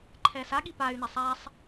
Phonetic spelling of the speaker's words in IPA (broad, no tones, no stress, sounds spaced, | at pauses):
ǃʰ ɛ s a ɠ i p a y̯ n ɛ sˤ a sˤ